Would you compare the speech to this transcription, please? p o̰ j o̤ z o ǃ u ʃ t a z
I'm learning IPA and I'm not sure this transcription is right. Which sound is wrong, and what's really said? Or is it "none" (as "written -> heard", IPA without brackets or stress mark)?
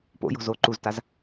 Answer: ʃ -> z